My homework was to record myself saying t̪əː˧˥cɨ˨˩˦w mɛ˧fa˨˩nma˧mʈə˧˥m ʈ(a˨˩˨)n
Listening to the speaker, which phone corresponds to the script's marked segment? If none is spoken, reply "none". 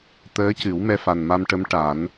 a˨˩˦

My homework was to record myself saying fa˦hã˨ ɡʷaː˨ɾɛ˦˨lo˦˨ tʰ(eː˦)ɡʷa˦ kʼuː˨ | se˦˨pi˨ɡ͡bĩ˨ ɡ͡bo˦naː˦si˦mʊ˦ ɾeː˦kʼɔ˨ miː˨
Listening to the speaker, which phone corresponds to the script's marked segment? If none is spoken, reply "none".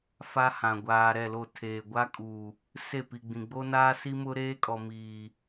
eː˨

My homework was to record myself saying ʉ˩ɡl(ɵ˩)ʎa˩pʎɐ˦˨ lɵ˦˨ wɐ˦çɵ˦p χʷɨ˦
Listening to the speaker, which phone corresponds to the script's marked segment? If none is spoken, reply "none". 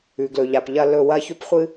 ɵ˩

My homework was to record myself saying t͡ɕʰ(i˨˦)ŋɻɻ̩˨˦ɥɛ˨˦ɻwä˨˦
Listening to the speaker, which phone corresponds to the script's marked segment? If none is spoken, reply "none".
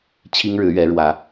i˦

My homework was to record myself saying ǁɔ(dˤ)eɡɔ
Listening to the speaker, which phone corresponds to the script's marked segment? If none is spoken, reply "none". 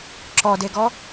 d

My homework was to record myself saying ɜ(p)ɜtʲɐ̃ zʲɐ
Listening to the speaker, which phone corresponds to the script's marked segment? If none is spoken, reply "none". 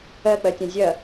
k͡p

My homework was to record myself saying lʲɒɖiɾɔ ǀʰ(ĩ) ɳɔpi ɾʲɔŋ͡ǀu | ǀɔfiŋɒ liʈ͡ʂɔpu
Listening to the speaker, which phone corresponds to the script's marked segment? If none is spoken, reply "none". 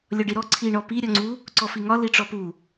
i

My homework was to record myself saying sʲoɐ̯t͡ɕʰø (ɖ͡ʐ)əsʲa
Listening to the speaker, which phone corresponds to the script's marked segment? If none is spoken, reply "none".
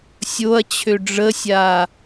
ɖ͡ʐ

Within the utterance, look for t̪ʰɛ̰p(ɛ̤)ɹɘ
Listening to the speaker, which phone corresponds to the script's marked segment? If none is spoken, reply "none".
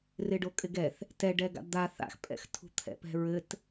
ɛ̤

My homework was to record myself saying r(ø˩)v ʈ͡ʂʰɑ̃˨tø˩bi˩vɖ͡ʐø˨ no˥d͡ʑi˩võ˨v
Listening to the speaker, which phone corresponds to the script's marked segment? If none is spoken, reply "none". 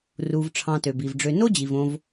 u˩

